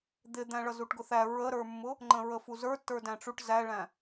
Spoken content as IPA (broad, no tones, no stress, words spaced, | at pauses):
d̪ɪd̪æ̃ ɭʌzuʈɡʊθæ ɹəɾə˞mːʊ | ŋ͡ǃə̃ɹəfuzə˞ tːə˞dæ̃ʈ͡ʂuʈ zæɭæ̃